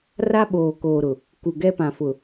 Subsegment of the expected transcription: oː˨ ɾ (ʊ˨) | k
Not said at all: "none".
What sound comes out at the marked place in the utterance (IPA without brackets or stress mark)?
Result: ʊ˨